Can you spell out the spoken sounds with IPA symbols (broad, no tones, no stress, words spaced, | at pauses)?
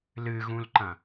lɨɣũlǃɐ̃